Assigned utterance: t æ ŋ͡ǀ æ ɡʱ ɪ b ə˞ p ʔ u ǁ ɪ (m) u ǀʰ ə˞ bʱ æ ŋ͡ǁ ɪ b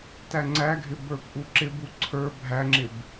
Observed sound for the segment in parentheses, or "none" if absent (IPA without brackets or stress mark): b